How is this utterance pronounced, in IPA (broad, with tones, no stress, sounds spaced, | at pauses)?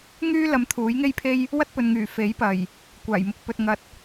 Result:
ŋ yː˥ l ɐ˨˧ m t̪ʰ uː˨˥ j ŋ e˥ j pʰ e˥ j | w ɐ˥ t̚ p ɵ˨ n ŋ yː˨˩ f e˨˥ j p ɐ˨˩ j | kʷ aː˨˩ j m ʊ˧ k̚ p ɵ˨ t̚ ŋ ɐ˨ t̚